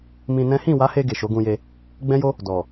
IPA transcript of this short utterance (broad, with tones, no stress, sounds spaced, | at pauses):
m ĩ˧ n ɛ̃˦ h ĩ˦˨ w a˨˦ h e˧ ɡ e˨ ʃ o˨˦ ɡ ũ˧ j e˧ | ɡ͡b ɛ̃˦ j o˦ | d ɔ˨